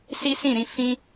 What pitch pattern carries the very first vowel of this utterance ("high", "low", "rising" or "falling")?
high